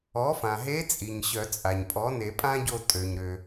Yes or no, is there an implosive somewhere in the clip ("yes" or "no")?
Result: no